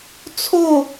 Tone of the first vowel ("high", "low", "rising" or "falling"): falling